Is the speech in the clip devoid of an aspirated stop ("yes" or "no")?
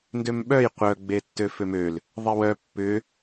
yes